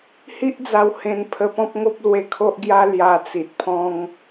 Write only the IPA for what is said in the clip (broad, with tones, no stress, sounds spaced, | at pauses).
h i˦ ʔ d͡z a˧ w h ẽ˧ n pʰ ə˧ p ɔ̃˦ p̚ ŋ o˦ p̚ l w e˧ kʰ o˦ ʔ ɡ j a˦ l j a˧ t͡s i˨ t̚ pʰ ɔ̃˦ ŋ